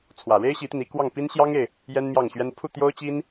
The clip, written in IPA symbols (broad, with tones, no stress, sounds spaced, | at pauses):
t͡sʰ w ä˨˩ ɻ e˥ ɪ̯ ɕ i˧˥ t̪ i˧ n i˧˥ k w ɑ˥˩ ŋ p i˥ n ɕ j ɑ˥ ŋ e˨ ɪ̯ | j ɛ˥ n m j ɑ˥˩ ŋ ɕ ɥ ɛ˥ n pʰ u˥˩ t̪ j o˥ ʊ̯ t͡ɕ i˥ n